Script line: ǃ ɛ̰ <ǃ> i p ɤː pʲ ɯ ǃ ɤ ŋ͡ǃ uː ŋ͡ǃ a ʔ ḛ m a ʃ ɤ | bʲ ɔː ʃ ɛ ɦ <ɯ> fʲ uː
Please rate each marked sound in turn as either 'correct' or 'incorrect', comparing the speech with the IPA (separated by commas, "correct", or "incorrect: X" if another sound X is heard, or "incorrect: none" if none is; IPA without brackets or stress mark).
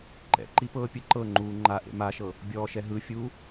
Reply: correct, correct